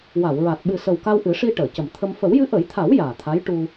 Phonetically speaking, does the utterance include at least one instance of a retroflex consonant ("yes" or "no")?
yes